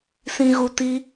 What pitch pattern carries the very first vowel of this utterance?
low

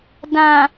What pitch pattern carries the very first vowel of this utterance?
low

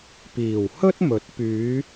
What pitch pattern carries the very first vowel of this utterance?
low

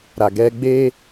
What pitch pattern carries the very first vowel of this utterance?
low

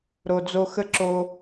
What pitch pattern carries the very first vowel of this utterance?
low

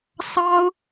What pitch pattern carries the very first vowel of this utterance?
high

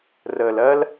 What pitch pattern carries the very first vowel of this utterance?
low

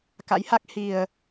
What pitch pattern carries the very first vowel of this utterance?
rising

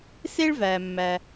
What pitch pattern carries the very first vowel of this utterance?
high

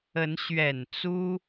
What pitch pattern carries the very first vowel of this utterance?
rising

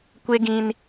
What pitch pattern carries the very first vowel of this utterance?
high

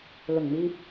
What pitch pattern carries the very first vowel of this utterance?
low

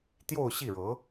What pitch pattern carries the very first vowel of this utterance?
falling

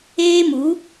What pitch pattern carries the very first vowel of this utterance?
high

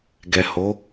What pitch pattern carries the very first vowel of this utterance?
low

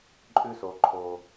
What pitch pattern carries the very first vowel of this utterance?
low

